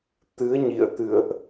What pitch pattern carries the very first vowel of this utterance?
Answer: rising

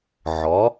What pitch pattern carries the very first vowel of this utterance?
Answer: rising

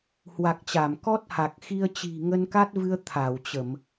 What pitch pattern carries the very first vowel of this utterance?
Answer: low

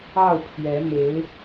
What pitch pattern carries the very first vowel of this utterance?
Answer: falling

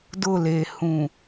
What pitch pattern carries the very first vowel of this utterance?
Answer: falling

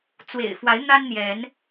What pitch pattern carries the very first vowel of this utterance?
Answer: low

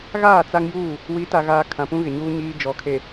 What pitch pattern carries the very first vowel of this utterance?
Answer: falling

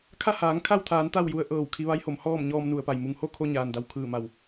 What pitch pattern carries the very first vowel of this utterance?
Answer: falling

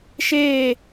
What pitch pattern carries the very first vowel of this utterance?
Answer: falling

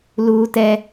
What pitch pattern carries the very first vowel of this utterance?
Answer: high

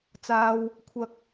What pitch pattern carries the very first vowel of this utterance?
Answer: high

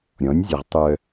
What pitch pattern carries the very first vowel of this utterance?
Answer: rising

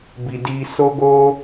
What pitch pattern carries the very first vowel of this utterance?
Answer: low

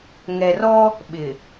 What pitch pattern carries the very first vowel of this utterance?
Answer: low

